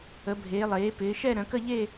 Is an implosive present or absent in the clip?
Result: absent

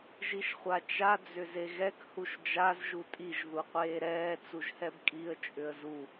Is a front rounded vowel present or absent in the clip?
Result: present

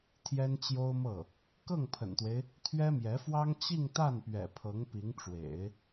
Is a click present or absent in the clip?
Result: absent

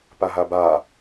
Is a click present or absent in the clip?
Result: absent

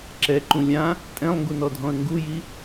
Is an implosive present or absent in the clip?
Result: absent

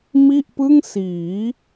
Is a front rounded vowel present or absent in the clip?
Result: absent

